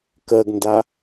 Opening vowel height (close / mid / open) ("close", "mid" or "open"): mid